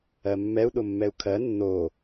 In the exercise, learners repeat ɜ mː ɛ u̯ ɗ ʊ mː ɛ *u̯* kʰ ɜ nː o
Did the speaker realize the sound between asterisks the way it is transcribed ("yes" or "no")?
yes